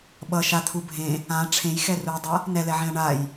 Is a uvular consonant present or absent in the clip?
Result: absent